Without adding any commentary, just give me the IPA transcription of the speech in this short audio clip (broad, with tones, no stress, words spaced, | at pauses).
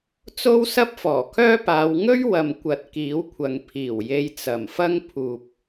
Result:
t͡so˥wsɐ˥p̚fɔː˨˩kʰœː˥ paː˨˧w ŋɵ˥ɥ wɐ˨mkʷɐ˨t̚ kiː˨˥wkʷʰɐ˨ŋ pʰiː˨˩w je˧jt͡sɐ˨˩mfɐ˥ŋ pʰuː˨p̚